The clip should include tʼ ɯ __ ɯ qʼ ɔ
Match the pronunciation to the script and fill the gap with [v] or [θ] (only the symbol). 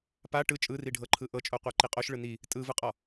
v